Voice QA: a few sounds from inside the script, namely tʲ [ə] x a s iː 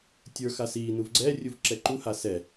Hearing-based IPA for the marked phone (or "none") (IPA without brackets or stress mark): ə˞